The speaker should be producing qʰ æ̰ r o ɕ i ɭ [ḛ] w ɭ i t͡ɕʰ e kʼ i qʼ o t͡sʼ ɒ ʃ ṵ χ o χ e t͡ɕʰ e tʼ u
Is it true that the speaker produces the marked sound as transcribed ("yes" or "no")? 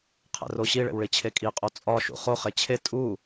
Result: yes